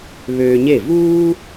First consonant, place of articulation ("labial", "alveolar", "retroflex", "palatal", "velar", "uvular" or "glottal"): labial